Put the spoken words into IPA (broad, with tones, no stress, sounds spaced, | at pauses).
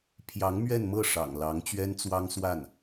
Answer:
pʰ j ɑ˧˥ ŋ m ɥ ɛ˥˧ n m ɤ˥˩ ʂ ɑ̰˨˩ ŋ l ɑ˧˥ ŋ t͡ɕ ɥ ɛ˥ n t͡s w ɑ˥ ŋ s w a˥˩ n